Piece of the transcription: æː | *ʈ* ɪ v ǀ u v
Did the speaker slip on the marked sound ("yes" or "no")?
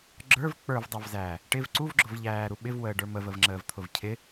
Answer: no